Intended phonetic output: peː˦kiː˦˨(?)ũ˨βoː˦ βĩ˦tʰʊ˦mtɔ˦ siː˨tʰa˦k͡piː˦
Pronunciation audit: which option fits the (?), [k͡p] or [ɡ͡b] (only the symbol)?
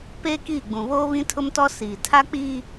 ɡ͡b